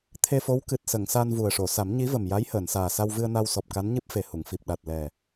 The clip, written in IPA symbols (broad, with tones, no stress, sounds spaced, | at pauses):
t̪ʰ e˧ f o˧˥ w k ɨ˨˩ t̚ s ə˨˩˨ ŋ s a˧ n v u˨˩ ə̯ ʂ o˨˩˨ s a˨˩˦ m ɲ i˧˥ v ə˨˩ m j a˧˥ j h əː˨˩˨ n s aː˨˩ s a˧ w v ɨ˧ ə̯ n a˧ w s ɔ˨˩ p̚ k a˧˥ n ɲ ɨ˦˥ p̚ f e˨˩ h u˨˩˨ ŋ f i˨˩ p̚ ɗ a˨˩ t̚ l ɛ˨˩